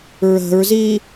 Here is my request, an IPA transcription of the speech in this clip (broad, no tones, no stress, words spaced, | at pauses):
ɹə̤ɹzi